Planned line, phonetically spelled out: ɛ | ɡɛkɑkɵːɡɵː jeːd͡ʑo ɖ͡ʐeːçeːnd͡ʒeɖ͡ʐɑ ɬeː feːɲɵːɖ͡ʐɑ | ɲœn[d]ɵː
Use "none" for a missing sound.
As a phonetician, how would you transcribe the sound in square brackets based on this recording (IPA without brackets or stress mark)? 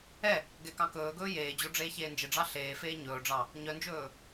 d͡ʒ